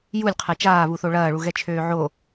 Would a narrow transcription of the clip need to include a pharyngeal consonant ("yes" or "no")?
yes